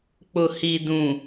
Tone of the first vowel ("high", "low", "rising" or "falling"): low